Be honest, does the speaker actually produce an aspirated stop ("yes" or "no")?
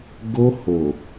no